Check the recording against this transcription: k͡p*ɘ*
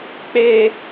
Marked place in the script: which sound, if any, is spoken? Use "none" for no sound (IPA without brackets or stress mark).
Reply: e